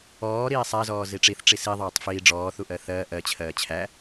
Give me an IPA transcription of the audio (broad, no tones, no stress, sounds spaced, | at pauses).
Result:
ɔː ɾ iː sˤ æ z ɔː z i ʈ͡ʂ i θ ʈ͡ʂ i s i ðˤ ɜː tˤ f iː ɖ͡ʐ ɔː θ u ʔ ɜ θ ɜː ʔ ɜ t͡ɕʰ ɜː t͡ɕʰ æ